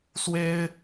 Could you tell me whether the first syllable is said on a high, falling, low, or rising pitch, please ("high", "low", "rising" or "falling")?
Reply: high